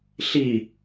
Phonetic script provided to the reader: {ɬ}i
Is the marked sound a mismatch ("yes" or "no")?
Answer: no